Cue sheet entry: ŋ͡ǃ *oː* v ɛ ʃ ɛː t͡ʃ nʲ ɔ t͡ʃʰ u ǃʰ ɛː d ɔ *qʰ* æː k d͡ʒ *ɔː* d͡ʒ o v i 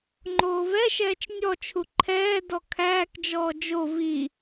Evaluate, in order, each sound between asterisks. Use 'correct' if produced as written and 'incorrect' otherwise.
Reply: correct, incorrect: kʰ, correct

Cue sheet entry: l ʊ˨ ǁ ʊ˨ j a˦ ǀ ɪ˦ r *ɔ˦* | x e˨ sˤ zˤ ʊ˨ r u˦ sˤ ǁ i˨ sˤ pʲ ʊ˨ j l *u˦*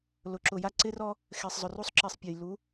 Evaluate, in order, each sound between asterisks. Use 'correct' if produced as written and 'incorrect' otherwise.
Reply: correct, incorrect: u˨˦

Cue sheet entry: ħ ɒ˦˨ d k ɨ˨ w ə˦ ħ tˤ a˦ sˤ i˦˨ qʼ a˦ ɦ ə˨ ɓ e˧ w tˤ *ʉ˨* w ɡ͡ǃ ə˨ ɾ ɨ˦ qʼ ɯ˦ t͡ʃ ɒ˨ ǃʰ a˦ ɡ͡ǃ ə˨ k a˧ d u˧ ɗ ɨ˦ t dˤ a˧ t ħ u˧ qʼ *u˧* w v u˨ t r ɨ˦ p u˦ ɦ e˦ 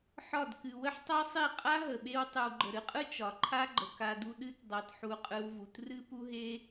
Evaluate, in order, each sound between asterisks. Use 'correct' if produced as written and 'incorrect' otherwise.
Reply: incorrect: ɨ˨, incorrect: ɯ˧

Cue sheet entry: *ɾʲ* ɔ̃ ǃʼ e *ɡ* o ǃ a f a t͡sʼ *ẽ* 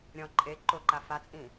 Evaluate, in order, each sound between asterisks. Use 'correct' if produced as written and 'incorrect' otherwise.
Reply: correct, incorrect: ǃ, incorrect: ĩ

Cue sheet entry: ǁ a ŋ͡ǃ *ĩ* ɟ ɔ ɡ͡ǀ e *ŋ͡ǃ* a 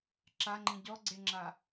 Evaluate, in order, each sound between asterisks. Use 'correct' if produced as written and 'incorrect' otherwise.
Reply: correct, incorrect: ŋ͡ǁ

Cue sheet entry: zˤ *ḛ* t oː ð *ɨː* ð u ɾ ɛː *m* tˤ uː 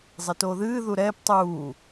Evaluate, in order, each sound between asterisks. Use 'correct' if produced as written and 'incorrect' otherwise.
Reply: incorrect: e, correct, incorrect: p

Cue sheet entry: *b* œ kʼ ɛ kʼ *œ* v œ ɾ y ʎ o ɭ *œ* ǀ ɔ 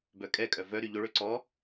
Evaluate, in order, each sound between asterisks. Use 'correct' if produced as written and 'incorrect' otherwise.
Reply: correct, correct, incorrect: ø

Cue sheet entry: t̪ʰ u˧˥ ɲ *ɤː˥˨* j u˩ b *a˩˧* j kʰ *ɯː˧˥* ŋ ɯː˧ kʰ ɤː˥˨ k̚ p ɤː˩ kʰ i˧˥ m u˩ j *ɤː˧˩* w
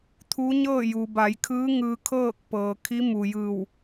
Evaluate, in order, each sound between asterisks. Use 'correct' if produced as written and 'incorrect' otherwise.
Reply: correct, correct, correct, incorrect: ɯː˧˩

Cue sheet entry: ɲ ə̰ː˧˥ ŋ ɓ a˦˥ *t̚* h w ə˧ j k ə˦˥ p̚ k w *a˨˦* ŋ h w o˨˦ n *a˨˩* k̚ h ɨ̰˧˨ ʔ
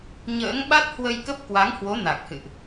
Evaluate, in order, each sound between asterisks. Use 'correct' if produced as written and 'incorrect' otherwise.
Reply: correct, correct, correct

